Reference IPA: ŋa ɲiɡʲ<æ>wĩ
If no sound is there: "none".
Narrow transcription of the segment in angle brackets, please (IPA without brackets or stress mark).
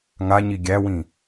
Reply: æ